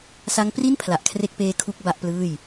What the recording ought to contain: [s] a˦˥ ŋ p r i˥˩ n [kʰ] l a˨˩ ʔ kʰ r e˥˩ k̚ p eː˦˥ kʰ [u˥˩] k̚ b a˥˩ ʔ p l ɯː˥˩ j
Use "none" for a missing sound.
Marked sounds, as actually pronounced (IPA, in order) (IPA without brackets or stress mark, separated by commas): s, pʰ, u˥˩